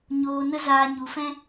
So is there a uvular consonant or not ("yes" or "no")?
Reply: no